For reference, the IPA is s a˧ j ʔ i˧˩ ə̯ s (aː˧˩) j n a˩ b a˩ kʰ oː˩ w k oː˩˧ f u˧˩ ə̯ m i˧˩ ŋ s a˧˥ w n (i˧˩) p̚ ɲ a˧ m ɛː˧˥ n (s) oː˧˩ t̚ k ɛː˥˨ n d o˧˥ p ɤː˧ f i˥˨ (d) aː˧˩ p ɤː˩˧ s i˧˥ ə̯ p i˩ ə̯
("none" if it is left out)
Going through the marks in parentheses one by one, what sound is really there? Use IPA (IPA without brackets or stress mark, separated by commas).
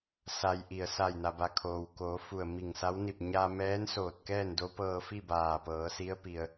a˧˩, i˧˩, s, b